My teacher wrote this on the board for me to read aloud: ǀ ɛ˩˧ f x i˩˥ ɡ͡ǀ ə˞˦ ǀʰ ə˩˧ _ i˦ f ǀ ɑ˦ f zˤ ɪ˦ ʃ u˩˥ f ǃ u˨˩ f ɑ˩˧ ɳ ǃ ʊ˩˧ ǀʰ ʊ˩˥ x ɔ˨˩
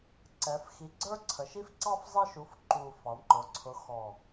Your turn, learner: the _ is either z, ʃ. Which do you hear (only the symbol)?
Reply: ʃ